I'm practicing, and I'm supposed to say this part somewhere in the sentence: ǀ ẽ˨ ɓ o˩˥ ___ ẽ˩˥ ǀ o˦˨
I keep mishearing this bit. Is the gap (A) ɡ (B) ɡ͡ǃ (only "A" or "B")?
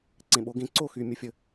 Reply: A